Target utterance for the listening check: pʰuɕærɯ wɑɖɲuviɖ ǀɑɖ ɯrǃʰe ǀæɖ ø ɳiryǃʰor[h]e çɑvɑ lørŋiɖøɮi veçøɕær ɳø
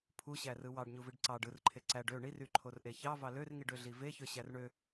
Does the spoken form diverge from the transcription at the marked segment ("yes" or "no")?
yes